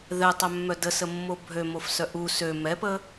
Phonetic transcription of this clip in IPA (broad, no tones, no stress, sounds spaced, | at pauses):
ð ɛ tˤ œ mː œ d ə s ə mː o bʱ ø m o f s œ ʔ u s ø m ɛ p ə